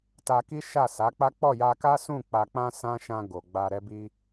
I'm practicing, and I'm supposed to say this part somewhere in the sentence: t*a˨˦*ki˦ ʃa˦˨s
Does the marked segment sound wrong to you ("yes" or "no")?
yes